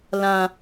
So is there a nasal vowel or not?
yes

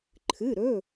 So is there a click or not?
yes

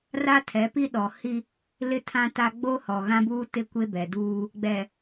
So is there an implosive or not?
yes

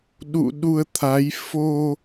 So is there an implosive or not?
yes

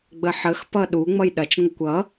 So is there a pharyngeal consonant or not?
yes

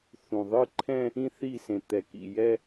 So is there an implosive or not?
no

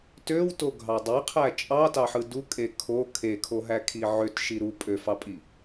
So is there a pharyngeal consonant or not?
yes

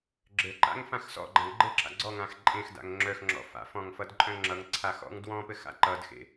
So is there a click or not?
yes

